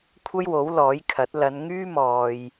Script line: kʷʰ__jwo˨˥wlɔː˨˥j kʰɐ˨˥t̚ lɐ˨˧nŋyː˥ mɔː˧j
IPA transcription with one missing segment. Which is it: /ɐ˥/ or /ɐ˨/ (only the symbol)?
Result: ɐ˥